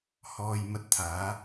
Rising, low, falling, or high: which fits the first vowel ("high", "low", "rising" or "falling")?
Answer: low